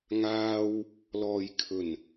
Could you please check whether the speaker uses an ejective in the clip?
no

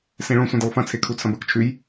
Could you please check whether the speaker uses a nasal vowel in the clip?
yes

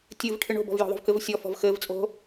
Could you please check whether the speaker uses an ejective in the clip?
yes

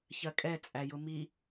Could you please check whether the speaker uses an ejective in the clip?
yes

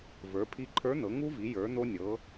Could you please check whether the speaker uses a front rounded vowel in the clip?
no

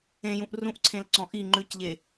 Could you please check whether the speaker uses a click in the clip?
yes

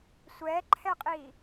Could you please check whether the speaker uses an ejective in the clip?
yes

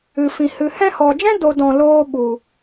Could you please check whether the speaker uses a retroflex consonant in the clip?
no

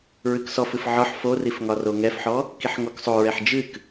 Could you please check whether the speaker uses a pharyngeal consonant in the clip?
yes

